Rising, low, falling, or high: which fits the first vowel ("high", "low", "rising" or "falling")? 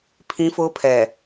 high